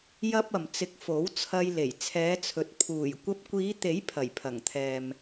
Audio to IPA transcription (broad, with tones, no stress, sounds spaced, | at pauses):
j ɐ˥ p̚ ɐ˨ m t͡s ɪ˧ k̚ f o˨˥ w t͡sʰ ɐ˧ j l e˨˩ j t͡sʰ ɛː˨˧ t͡sʰ ɵ˨ t̚ pʰ uː˨˩ j kʷ ɐ˧ p̚ kʷ iː˨˧ t̪ e˨˥ j pʰ ɐ˨˩ j pʰ ɐ˨˩ ŋ t̪ʰ ɛː˨ m